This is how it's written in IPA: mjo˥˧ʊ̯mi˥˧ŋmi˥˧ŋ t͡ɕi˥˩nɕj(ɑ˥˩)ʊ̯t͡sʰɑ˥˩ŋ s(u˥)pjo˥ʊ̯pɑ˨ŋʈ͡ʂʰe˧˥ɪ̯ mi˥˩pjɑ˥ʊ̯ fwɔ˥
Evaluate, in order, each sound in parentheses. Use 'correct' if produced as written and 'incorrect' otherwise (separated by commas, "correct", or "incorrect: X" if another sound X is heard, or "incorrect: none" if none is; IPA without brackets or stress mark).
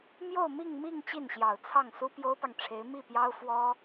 incorrect: ɑ˨˩, correct